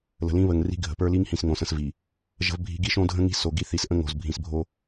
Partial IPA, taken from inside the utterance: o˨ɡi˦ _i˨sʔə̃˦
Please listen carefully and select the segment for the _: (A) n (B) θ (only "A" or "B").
B